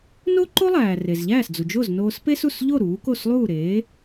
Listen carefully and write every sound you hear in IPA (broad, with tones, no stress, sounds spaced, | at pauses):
n o˥ ǃ o˥ lˠ æː˩ r e˩ z ʎ æː˥˩ s d͡z u˩ d͡ʒ o˥˩ z n oː˧ s p e˥ s u˥˩ s ʎ o˥˩ ɾ uː˩˥ k o˥˩ s lˠ uː˥˩ ɾ eː˩˥